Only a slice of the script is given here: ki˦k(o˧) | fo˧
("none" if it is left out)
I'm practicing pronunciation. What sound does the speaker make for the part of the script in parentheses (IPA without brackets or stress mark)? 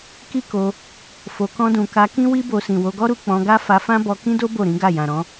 o˧